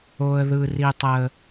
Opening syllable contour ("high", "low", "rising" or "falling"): low